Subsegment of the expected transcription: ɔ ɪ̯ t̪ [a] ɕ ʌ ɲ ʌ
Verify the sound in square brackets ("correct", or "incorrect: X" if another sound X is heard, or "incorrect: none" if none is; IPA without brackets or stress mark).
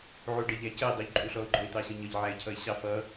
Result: incorrect: ɑ